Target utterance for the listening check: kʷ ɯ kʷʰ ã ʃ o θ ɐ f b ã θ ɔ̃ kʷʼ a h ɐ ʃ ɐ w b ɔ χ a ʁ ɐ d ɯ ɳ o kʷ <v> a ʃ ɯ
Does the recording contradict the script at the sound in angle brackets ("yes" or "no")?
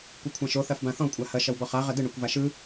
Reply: no